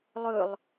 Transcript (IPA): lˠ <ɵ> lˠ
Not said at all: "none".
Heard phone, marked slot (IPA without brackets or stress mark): ɵ